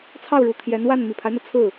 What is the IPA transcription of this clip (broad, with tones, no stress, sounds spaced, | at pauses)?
t͡sʰ ɑ˥˩ ʊ̯ ɻ u˨˩ t̪ʰ j ɛ˧˥ n w a˥˩ n m i˨˩ pʰ a˦ ɪ̯ n̪ ɤ˩ t͡sʰ ɹ̩˥˩